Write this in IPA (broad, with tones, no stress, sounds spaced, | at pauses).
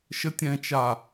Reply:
ʃ ə˨˦ tʲ ɛ̃˨ t͡ʃ a˨